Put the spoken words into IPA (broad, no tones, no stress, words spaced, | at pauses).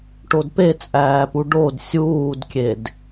ʈodpet͡sʼæːpu ɖod sʲuːdkʲed